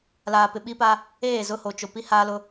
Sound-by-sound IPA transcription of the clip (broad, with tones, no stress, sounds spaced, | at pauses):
l aː˨ p ɪ˨ ɓ i˦ p aː˦ | eː˦˨ z ʊ˦ h o˨ t͡ʃ o˨ p i˦ h aː˦ l ʊ˦